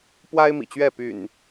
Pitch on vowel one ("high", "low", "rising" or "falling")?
high